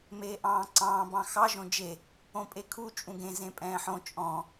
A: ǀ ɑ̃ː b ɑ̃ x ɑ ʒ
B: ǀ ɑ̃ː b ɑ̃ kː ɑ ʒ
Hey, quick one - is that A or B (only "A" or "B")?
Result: A